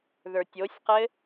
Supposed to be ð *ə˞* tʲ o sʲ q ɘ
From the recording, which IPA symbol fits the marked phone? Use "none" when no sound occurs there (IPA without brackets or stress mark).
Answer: ə˞